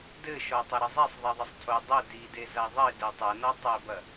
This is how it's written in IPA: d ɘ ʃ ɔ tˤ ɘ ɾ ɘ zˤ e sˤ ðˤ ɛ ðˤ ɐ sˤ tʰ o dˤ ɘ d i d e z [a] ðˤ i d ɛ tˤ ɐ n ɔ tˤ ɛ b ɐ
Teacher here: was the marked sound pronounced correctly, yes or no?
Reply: yes